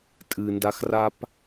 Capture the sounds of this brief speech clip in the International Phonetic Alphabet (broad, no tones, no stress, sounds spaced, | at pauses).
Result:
tʼ ɨ n d a x r a p